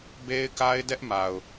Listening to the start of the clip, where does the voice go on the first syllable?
high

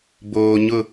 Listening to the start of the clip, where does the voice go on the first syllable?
low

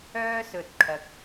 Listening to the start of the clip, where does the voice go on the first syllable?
high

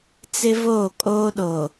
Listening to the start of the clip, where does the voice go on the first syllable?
high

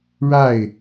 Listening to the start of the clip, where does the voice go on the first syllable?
falling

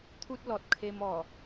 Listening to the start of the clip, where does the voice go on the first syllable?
high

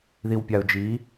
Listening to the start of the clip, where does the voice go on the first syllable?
low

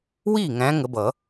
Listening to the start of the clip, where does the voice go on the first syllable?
falling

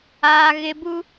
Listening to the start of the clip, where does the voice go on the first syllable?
high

